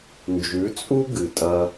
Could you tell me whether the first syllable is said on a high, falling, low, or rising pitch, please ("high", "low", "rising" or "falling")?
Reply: rising